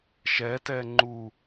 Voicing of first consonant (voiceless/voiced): voiceless